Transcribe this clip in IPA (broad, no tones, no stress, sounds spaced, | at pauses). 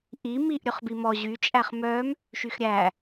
ʔ i m i ʔ ɾʲ ɵ χ b i m ɔ ʑ y t͡ʃʼ æ χ m œ m | ʃ y x ɾʲ æ